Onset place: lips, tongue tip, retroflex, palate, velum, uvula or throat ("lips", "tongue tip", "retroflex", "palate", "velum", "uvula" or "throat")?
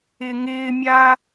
velum